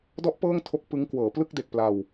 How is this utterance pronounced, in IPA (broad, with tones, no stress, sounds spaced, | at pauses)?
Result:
d ɔ˦˥ ʔ p ɤː˥˩ ŋ tʰ o˦˥ k̚ p ɯ˦˥ ŋ k w ɤː˩˦ p l ɯ˥˩ k̚ d e˨˩ k̚ p l a˧ w